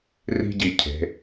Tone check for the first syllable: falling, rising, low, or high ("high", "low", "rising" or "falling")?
high